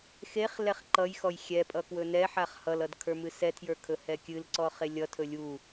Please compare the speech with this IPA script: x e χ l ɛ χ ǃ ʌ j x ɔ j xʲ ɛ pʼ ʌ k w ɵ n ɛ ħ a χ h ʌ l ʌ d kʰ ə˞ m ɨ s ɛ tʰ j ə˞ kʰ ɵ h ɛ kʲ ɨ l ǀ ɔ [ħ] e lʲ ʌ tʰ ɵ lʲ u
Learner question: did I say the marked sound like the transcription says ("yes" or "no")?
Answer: no